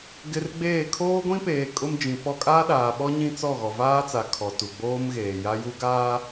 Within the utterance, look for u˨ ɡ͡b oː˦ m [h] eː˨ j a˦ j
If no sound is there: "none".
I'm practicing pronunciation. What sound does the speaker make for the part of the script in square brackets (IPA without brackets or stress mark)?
ɣ